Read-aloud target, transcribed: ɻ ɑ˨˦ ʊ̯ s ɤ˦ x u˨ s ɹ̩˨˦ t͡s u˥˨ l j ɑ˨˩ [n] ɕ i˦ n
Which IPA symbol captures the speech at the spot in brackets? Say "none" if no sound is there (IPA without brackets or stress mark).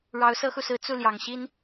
ŋ